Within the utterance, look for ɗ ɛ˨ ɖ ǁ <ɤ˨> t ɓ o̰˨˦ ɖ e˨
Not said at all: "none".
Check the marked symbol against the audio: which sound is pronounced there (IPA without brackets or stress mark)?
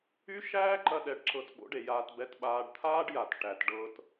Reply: ɤ˨